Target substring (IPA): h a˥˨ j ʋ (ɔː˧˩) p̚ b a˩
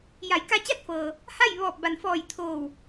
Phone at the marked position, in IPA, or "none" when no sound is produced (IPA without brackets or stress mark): ɔː˧˩